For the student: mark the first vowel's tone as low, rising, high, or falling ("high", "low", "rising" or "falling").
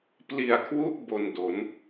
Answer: low